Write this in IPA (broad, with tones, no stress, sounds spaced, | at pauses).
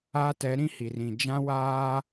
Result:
aː˦ t ɛ˨˦ ɾ ĩ˦ h i˨ r ĩ˨ d͡ʒ ã˦ w aː˦